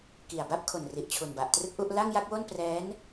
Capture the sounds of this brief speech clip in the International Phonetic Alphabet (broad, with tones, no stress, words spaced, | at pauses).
ki˨˩a̯ba˥˩p̚ kʰo˨˩nri˨˩ʔ t͡ɕʰu˨˩nba˨˩ʔtrɯ˥˩k̚ʔu˥˩ʔ la˥˩ŋja˥˩k̚wo˥˩n prɛː˦˥n